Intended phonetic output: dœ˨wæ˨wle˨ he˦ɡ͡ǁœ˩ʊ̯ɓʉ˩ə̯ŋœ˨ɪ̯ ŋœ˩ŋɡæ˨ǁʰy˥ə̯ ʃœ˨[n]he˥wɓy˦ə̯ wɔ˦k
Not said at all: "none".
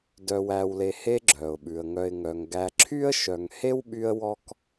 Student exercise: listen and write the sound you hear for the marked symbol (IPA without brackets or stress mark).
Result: ŋ